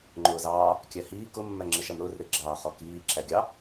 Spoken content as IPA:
ŋ͡ǃ ʊː z ɑː | kʲ æ h iː k ʊ mː æ ŋ͡ǁ ɪ ʃ æ m ɾ ʊː r ɾ ɪ ɡ͡ǁ ɑː χ ɔ k iː ǁ æ ɡʲ ɑ

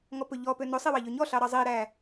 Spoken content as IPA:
ŋ ɔ p ɵ ʎ ɔ p ø n ɵ sˤ i w ɑ ʎ ø ɲ ɔ ɬ ɑ ɾ ɑ zˤ i ɾ æ

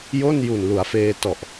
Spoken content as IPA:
j o˥˩ n j u˨˩ n l u˩˦ a̯ f eː˧ t ɔ˨˩ ʔ

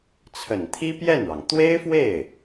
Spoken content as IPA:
t͡sʰ ə˨˩ n t̪ʰ i˥ p j ɛ˥˩ n ɻ ɑ˩ ŋ t̪ w e˥ ɪ̯ f w e˥˩ ɪ̯

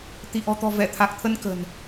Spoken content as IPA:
t̪ i˧˩ ʔ ɔ̤˨˩ t̪ ɔ̤˨˩ v ɛ˧˩ t̪ʰ a˨˩ k̚ t̪ʰ ə˧ n k ə̤˨˩ n

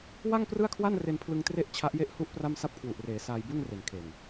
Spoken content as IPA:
w a˥˩ ŋ p r ɯ˥˩ a̯ kʰ w a˥˩ n r e˧ n pʰ l ɯ˧ ŋ t r e˥˩ ʔ t͡ɕʰ a˦˥ ʔ j e˥˩ ʔ h u˥˩ ʔ p r a˥˩ m s a˦˥ p̚ kʰ w u˨˩ ʔ r eː˩˦ s aː˧ j b u˥˩ n r e˨˩ n kʰ e˨˩ n

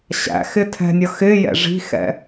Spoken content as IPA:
ɕ æ̰ x ɪ tʰ ɛ̤ nʲ ʌ x ɪ j ɛ̰ ʐ i̤ x ɛ̰

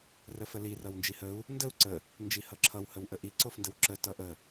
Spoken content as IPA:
r ə f ə l i r ʌ w n d͡ʒ i h ə u̯ | n d ə u̯ ǀ ə | n d͡ʒ i h ʌ ǁʰ ʌ w h ə w ʔ ə ʔ i ǀ o f n d ə w ǁ ə t ʌ ʔ ə

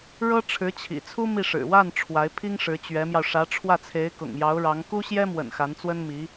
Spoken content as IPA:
ɻ ɤ˥ ʈ͡ʂʰ ɻ̩˧˥ t͡ɕʰ ḭ˨˩ t͡sʰ u˥ m i˥˩ ʂ ɻ̩˨˩ w a˥˩ n ʈ͡ʂʰ w a˧˥ ɪ̯ pʰ i˥ ŋ ʂ ɻ̩˧˥ t͡ɕ ɥ ɛ˧˥ m j ɑ˧ ʊ̯ ʂ ä˧˥ ʈ͡ʂʰ w ä˥˩ t͡sʰ e˧˥ ɪ̯ k ʊ̰˨˩ ŋ j ɑ˧˥ ʊ̯ ɻ ɑ˧˥ ŋ k u˥ ɕ j ɛ˥ m w ə̰˨˩ n x a˧˥ n t͡s w ə˥ n m i˧˥

